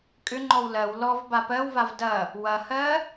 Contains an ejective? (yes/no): yes